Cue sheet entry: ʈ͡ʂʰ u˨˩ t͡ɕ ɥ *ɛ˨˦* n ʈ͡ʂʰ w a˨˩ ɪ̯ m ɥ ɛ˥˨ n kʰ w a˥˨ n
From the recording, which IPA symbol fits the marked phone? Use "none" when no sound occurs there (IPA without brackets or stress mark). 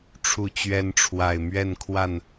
ɛ˨˦